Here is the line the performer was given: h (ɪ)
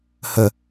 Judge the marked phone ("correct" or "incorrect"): incorrect